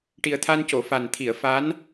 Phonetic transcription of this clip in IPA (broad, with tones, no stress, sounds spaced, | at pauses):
ʈ i˨˩ ə̯ t̪ʰ a˧ n c o˨˩˨ f a˨˩ n t̪ʰ i˨˩˨ ə̯ f a˧˥ n